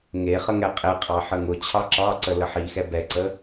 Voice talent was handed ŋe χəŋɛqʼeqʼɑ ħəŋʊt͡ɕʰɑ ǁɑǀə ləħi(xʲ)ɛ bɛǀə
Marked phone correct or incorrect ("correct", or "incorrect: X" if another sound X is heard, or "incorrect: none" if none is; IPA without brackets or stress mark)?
incorrect: x